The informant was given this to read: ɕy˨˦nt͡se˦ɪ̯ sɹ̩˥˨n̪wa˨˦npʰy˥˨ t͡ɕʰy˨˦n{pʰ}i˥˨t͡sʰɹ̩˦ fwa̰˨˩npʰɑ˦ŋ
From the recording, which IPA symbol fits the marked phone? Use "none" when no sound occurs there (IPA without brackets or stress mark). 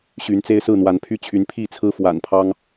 pʰ